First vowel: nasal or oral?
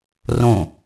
nasal